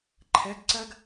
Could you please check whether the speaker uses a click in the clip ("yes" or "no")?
yes